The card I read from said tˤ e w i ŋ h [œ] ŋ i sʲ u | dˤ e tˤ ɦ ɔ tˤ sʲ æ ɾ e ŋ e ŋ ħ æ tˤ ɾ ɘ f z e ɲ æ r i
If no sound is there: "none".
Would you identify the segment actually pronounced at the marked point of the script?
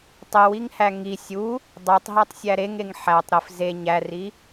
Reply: æ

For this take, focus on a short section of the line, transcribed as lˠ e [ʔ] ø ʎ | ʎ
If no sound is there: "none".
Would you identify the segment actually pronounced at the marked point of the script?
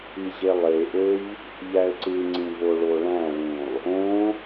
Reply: ʔ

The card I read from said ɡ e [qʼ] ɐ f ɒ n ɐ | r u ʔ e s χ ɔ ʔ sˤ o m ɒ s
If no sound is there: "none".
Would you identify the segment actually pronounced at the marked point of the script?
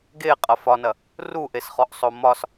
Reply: qʼ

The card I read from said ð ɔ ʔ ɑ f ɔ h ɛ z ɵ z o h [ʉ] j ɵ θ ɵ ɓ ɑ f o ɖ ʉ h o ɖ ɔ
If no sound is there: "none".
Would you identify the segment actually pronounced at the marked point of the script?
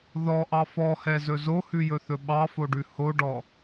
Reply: ʉ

